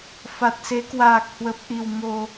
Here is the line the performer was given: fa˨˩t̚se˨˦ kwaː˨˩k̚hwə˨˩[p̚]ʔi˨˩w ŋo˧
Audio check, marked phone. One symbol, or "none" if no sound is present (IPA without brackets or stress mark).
p̚